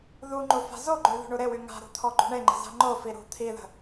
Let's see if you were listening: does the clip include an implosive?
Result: no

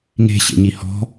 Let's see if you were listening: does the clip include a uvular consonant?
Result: no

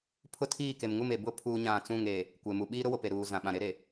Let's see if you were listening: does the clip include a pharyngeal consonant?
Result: no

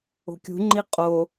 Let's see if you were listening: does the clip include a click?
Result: yes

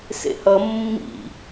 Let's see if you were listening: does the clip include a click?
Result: no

